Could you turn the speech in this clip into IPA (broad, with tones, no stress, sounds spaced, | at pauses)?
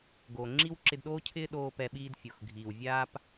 ɡ o˨ ŋ͡ǁ i˦ w ǁ ɪ˧ d ɗ oː˦ cʰ ɪː˦ ɗ oː˦ p ɛ˧ ɓ iː˦ d fʲ o˨ x ɡʱ iː˨ w vʲ aː˦ p